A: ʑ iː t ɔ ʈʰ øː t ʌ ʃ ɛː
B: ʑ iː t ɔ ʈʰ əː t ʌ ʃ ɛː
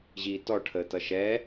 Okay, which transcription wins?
B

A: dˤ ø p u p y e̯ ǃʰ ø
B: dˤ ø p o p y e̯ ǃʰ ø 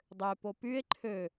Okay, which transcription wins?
B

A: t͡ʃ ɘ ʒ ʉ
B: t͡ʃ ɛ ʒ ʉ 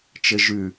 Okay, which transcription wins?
A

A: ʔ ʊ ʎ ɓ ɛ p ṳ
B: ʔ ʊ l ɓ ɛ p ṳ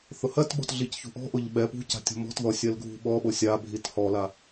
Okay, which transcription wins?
A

